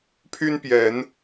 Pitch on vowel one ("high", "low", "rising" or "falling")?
high